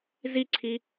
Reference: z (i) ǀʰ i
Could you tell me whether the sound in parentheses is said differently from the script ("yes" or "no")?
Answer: no